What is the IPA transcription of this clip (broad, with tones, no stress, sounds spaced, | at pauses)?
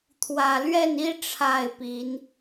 t̪ʰ w ä˨˩ l ɥ ɛ˥˨ n i˦ ʈ͡ʂʰ a˥˨ ɪ̯ p i˨˦ n